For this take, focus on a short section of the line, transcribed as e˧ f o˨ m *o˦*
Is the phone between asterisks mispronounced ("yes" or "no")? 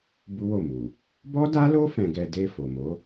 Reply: yes